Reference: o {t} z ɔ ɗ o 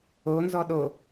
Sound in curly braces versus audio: incorrect: n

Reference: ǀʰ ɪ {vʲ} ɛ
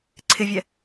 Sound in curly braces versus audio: correct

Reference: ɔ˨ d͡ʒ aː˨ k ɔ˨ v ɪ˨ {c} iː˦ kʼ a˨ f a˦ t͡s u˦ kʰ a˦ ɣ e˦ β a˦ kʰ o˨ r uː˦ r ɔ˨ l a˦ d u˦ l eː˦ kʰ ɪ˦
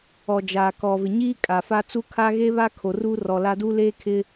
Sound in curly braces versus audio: incorrect: ɲ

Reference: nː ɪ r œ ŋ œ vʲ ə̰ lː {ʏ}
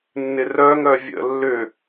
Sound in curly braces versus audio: correct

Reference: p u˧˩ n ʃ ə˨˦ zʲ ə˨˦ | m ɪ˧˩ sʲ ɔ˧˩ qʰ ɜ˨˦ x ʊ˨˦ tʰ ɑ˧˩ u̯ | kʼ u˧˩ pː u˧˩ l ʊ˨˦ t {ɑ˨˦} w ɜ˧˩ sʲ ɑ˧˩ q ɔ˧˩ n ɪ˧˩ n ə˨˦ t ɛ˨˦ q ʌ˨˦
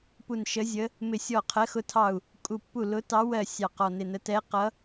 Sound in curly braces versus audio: correct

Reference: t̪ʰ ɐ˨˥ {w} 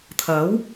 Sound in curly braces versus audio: correct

